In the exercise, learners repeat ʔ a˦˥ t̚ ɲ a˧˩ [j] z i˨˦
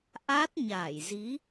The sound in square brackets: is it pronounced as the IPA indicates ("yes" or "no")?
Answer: yes